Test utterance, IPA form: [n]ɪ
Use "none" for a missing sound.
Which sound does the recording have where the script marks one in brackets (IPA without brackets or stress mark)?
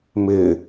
m